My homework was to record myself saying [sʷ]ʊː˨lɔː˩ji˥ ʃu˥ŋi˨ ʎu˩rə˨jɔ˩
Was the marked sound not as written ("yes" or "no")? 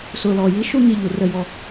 yes